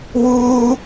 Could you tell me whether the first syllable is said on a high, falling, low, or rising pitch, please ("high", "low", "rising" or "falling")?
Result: high